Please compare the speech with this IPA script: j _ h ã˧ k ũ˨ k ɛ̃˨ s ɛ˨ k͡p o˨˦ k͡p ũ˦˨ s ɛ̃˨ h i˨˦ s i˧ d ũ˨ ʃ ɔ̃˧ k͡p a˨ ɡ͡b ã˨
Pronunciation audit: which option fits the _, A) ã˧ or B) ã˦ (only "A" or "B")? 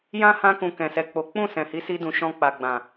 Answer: B